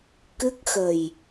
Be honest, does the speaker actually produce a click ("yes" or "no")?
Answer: no